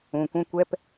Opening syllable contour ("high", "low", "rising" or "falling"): low